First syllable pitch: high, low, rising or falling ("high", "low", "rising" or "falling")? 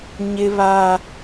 high